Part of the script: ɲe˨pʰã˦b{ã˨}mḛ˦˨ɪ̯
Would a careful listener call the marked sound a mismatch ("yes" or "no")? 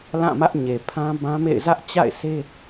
yes